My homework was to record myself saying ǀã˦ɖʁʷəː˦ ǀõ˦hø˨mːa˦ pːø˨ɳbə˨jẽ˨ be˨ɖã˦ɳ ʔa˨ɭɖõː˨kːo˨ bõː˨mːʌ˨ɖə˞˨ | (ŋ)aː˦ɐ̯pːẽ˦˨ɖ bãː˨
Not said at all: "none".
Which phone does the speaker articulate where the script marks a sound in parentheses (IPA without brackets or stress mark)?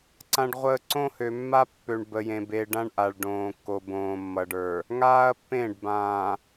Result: ŋ